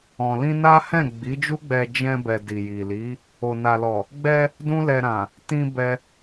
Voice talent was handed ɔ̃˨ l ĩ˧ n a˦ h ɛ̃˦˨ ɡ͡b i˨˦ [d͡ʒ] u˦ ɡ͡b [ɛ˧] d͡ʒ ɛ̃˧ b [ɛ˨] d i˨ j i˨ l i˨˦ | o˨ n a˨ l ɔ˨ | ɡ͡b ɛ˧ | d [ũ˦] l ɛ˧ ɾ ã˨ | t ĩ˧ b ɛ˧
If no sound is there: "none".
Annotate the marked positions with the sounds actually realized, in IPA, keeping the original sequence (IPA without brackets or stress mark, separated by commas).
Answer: d͡ʒ, ɛ˧, ɛ˨, ũ˦